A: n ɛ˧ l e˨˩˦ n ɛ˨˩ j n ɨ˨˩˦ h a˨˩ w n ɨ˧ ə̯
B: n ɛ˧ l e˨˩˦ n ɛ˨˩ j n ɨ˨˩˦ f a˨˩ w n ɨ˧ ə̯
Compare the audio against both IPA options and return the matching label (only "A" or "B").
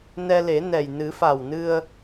B